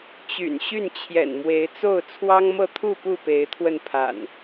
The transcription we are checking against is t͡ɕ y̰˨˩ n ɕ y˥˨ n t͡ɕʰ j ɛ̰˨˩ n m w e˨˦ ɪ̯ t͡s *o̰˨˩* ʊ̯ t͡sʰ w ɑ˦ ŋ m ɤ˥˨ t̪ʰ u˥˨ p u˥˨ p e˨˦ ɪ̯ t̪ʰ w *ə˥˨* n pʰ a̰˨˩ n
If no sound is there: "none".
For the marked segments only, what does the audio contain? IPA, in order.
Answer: o˥˨, ə˧

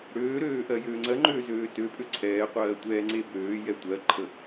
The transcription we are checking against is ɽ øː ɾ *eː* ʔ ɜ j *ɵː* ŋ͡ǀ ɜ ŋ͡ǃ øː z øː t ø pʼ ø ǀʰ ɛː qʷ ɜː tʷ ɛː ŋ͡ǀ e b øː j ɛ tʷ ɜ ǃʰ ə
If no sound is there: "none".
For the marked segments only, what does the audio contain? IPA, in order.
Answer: øː, øː

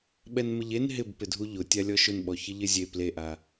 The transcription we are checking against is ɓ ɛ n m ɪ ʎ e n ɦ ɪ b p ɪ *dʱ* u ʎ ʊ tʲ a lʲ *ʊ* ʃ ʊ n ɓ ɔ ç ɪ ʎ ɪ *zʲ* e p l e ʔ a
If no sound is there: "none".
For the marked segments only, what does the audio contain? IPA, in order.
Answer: dʱ, ɔ, zʲ

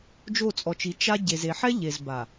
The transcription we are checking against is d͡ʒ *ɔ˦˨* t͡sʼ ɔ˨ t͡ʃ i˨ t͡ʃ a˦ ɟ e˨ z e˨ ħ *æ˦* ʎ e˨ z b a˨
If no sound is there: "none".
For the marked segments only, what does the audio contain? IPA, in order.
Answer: o˦˨, ɛ˦

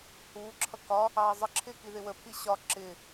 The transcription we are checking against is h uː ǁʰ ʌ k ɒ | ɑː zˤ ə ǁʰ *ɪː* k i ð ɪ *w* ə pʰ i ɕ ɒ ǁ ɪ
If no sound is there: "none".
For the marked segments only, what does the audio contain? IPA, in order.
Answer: ɪː, w

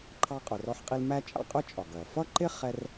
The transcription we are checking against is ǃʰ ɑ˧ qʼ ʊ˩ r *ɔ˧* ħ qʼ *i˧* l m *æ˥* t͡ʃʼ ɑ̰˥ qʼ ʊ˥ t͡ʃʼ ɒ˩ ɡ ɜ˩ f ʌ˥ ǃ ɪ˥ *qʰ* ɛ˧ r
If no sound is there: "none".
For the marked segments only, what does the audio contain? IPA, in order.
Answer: ɔ˧, i˧, æ˥, χ

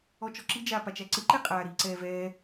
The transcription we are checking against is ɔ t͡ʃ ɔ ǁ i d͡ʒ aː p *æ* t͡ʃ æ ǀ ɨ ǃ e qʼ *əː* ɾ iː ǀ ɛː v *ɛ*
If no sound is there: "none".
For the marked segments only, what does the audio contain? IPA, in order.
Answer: a, aː, ɛː

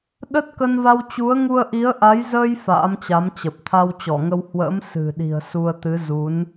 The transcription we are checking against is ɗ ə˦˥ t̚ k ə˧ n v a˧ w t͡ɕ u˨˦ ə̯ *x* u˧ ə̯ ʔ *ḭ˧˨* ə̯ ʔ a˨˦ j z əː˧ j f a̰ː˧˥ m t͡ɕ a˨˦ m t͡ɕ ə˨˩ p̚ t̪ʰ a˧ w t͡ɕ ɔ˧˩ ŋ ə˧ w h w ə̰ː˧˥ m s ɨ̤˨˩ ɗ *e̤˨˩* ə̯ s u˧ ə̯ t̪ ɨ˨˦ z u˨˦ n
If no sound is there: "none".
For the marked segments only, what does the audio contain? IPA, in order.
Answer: ŋ, i˨˦, i̤˨˩

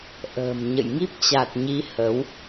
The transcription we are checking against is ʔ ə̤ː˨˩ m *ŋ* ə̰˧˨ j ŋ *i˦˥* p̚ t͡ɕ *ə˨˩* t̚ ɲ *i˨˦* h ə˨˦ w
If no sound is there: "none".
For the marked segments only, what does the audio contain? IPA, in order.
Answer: ɲ, i˦˥, a˨˩, i˨˦

